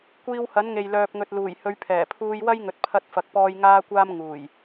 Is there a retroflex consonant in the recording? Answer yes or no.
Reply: no